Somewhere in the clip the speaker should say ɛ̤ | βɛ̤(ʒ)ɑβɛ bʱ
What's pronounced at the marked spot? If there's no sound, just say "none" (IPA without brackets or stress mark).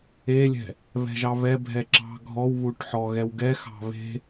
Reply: ʒ